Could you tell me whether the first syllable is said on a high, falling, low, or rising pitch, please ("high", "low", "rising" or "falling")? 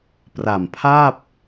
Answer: low